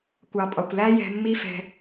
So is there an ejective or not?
yes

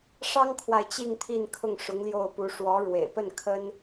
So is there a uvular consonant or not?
no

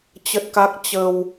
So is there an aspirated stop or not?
no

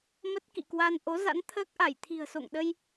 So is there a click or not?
no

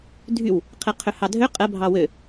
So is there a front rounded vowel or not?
yes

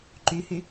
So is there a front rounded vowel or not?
yes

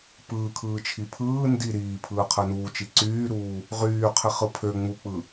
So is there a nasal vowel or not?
no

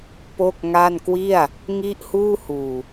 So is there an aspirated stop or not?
no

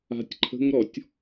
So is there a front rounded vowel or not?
no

